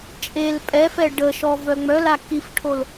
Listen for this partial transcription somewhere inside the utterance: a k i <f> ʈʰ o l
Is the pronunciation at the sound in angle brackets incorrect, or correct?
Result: correct